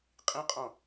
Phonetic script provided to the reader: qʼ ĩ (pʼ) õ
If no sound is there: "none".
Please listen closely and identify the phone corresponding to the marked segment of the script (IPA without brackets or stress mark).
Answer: qʼ